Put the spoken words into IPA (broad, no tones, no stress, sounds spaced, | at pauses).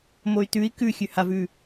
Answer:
m o y̯ t ʉ i̯ k ʉ xʲ ʉ h a v ʉ